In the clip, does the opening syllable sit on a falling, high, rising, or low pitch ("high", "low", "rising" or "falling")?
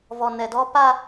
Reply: low